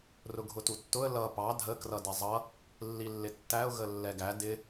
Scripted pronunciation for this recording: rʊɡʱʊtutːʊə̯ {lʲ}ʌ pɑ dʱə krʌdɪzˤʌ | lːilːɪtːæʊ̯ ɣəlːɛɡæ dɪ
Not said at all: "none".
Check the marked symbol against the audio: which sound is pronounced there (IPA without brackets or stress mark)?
l